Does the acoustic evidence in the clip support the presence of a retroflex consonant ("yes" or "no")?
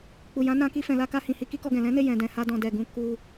no